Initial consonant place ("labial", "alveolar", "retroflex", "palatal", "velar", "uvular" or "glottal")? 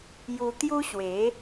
palatal